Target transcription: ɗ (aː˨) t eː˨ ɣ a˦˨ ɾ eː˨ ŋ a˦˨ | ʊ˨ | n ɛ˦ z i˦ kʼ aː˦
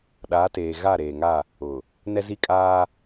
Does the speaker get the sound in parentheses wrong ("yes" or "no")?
yes